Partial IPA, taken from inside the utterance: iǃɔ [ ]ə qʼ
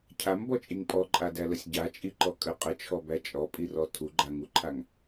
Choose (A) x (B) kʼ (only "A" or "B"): B